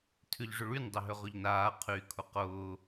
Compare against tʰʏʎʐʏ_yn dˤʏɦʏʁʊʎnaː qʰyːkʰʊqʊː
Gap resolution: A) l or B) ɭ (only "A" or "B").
B